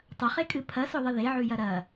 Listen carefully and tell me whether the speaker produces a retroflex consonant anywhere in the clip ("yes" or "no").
no